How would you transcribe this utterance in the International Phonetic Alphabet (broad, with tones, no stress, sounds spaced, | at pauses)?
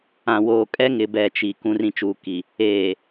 ã˨ w oː˨ kʼ ɛ˦ ŋ ɪ˨ b ɛ˨ t͡ʃ i˨ k ũ˨ r ĩ˨ t͡ʃ uː˨ k i˨ | eː˨